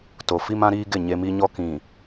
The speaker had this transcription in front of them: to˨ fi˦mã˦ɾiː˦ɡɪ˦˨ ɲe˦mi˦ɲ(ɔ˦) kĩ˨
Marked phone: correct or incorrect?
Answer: correct